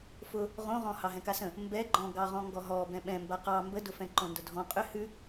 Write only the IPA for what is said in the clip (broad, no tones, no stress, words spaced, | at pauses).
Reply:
fʊ | ʁõʁɔ̃ hɑɦɛ̃kasə̃ | mbɛɡ͡ǃɔ̃ ɡɑʁɔ̃ŋɡɔɦɔ bɛ̃ɓɛ̃mba qɑ mbədʊfɛ̃ ǃõndʊdʱɔ̃ qʼʏ hʉ